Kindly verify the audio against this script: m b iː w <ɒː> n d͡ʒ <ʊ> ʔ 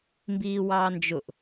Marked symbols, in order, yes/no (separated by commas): no, yes